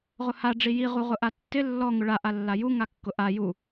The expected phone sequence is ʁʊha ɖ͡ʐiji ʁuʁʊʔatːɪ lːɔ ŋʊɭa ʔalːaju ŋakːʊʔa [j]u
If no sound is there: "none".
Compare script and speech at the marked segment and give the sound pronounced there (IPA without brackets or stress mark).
j